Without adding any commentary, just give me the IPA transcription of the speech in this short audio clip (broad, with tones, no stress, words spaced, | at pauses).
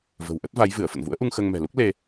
və̤˨˩wʔə˦˥t̚va˨˦j vɨ˧˩ə̯ fə̰˧˨nvṵ˧˥ə̯ʔu˧ŋ xəː˧ŋ mɛ̤˨˩lu˦˥k̚ le˧